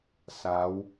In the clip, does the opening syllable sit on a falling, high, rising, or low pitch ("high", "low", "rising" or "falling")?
rising